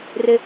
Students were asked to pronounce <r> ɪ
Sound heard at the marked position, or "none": r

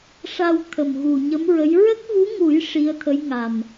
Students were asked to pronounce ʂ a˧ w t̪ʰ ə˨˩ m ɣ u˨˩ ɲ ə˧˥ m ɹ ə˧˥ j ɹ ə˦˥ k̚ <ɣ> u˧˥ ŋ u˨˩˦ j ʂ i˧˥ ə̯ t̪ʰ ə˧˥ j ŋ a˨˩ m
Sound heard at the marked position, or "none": ɣ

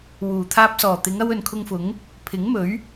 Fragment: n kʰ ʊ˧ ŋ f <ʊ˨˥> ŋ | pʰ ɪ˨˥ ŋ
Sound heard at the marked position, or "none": ʊ˨˥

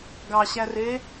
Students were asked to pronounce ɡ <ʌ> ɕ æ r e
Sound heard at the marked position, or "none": ɑ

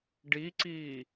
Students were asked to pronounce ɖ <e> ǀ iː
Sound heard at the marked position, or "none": i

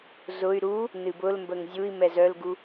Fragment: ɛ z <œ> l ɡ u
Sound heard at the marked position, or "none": œ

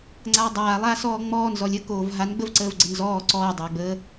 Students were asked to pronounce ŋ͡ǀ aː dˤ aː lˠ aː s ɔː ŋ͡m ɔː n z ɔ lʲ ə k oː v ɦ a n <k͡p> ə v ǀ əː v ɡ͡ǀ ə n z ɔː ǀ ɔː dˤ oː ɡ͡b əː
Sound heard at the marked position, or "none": ɡ͡b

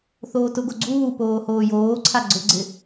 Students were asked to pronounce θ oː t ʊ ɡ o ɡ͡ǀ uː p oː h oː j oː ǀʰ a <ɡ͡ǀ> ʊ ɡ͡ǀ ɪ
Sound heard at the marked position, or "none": ɡ͡ǀ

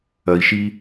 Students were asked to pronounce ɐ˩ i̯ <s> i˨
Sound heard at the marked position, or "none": ʃ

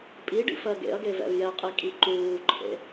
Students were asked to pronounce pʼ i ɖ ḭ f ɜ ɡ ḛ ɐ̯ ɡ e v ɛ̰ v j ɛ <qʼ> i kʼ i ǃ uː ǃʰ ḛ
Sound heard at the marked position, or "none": qʼ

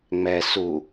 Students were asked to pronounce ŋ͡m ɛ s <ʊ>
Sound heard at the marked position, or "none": u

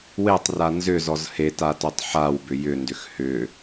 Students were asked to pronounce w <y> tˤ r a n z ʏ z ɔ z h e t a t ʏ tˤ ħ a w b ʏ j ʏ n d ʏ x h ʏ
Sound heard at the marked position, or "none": e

